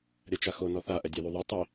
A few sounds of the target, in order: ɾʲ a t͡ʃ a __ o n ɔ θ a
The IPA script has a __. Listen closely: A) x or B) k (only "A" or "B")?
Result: A